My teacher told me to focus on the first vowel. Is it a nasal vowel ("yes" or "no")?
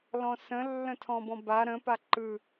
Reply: yes